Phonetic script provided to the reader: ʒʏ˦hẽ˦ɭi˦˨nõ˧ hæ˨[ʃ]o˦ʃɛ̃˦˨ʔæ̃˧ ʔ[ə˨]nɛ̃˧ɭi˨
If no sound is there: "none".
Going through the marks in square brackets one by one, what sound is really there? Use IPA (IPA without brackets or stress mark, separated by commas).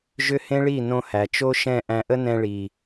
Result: t͡ʃ, ə˦